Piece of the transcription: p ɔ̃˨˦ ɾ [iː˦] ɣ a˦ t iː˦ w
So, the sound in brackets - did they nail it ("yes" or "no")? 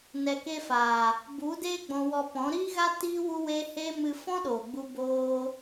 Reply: yes